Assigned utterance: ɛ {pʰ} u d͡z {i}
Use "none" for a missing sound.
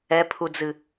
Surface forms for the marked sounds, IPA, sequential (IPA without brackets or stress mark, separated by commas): pʰ, ɨ